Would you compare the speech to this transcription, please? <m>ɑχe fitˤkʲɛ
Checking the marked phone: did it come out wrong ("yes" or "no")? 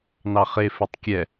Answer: yes